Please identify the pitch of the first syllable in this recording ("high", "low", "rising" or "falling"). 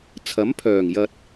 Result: rising